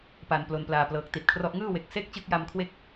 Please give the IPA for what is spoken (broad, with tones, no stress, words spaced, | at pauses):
pa˨˩nplo˨˩nplaː˨˩ plɤː˨˩k̚ti˨˩t̚kʰrɔ˦˥ʔ ŋɯː˥˩ we˨˩k̚ se˥˩k̚t͡ɕɯ˦˥k̚ja˧mkʰwe˦˥k̚